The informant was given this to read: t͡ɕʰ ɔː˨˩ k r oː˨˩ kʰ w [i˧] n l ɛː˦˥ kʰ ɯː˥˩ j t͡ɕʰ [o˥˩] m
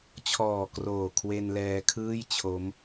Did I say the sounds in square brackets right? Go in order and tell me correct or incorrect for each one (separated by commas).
incorrect, incorrect